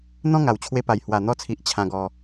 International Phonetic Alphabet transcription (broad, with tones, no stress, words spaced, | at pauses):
n̪ɔ̃˦ŋa˨˩wt͡ɕʰwe˧pa˨˩j hwa˨˩n̪ɔ˧t͡sʰi˨ʔ t͡ɕʰã˧ɡɔ˧